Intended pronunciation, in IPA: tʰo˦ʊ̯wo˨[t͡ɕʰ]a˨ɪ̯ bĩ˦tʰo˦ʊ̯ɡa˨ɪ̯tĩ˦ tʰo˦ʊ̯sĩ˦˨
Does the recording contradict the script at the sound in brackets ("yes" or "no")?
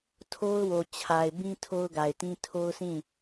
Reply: no